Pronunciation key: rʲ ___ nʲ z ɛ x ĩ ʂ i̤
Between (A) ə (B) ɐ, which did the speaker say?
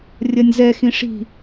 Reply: B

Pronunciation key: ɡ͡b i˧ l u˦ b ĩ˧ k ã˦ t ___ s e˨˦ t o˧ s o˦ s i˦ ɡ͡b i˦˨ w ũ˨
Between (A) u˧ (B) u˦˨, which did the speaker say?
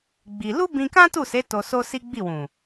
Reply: B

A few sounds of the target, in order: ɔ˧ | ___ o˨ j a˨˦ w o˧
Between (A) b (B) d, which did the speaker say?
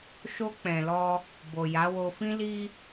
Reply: A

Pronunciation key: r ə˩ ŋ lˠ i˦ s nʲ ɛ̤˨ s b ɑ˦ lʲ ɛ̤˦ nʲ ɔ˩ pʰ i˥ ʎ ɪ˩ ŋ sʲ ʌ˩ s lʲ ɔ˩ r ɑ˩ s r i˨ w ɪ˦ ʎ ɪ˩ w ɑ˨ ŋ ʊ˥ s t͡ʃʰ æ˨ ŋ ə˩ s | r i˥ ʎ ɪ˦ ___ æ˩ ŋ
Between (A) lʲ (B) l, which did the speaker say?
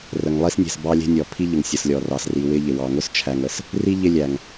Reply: A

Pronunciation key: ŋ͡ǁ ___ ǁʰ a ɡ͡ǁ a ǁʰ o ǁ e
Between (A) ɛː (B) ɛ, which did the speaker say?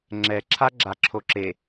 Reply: B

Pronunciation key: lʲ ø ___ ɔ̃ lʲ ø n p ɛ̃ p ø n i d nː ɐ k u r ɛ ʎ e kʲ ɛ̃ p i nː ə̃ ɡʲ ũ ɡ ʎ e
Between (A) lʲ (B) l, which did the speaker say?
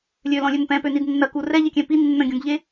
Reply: B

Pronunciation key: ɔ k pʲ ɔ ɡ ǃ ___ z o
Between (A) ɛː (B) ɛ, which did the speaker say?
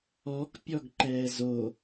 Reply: A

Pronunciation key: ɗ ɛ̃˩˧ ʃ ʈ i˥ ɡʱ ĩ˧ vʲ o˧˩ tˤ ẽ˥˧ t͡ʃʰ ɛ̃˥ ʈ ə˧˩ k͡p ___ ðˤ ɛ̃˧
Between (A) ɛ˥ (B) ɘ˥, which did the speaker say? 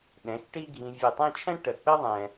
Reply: B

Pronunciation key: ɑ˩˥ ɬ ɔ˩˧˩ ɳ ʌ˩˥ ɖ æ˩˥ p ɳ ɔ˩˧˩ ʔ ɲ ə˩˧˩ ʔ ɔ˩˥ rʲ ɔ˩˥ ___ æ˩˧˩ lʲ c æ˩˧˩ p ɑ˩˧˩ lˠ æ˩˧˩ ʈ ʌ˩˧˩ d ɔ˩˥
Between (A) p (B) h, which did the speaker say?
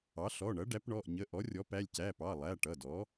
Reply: A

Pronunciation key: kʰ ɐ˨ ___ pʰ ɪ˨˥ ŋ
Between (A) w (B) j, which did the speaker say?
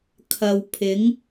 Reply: A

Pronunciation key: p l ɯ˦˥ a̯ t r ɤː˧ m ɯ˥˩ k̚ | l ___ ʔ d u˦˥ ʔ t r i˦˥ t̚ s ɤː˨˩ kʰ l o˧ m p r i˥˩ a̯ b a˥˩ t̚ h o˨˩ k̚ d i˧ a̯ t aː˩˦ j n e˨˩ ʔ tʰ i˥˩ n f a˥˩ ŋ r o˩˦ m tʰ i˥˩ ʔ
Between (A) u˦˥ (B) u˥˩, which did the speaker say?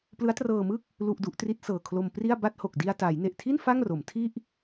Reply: B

